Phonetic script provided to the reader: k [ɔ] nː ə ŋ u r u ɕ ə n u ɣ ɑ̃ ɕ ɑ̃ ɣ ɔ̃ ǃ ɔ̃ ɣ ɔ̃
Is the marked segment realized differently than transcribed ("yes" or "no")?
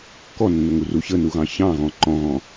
no